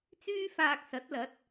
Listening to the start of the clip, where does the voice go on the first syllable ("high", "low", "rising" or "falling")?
high